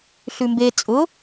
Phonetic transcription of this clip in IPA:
ɬ ʉ m b e t͡sʼ ʊ

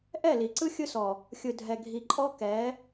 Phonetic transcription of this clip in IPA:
ʔ ɛ˦˨ l i˨ ǀ ɯ˦ xʲ ɯ˦ s ɔ˨ | xʲ ɯ˨ dʱ ɛ˨ ɡʱ i˨ ǃʼ ɔ˦ k ɛ˨˦

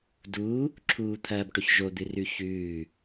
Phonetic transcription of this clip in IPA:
d u | ǁʰ uː t̪ʰ ɐː b ʈ ɵ ç ʒ o d̪ ɨ r ʉ ç ʉː

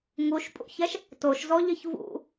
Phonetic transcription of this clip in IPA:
ŋ u ʃ pʼ ṵ ç ɛ ʃ | t o ʃ z ɔ ʎ ɘ ç v ṵ

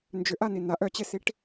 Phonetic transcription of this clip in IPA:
n d͡ʒ ʏ ʔ a n i n a ʔ œ t͡ɕ e s i ʈ

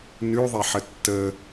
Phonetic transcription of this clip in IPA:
n ʉ ðˤ e ħ ə tː ə

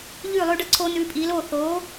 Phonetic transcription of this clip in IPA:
ʎ ʉː˥˩ lˠ ʉː˥ ɖ ʌ˥˩ ǀʰ oː˥ n ʉː˧ pʼ iː˩˥ l oː˥˩ θ oː˩˥

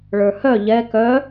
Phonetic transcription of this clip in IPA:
ɭ ə˞ h œ ʎ ɛ k œ

